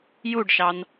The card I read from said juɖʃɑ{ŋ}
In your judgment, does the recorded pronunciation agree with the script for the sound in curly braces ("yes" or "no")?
no